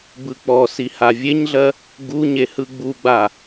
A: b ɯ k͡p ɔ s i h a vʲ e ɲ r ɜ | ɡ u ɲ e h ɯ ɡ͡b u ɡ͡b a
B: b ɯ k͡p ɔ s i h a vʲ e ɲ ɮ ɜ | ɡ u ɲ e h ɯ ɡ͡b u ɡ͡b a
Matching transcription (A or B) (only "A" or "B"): B